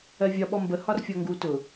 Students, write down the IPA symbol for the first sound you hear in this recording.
ɜ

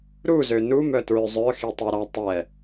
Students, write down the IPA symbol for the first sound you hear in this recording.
ɾ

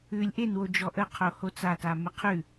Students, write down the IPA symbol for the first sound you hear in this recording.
ʉ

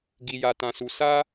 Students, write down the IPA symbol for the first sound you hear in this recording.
ɡ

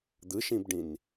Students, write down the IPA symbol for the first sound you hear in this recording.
d̪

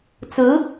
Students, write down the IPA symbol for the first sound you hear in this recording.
t͡s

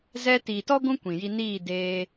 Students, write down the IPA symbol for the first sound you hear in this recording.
z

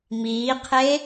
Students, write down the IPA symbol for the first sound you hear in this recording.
m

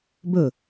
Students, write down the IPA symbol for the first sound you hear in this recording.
b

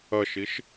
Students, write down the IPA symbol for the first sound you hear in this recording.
ɐ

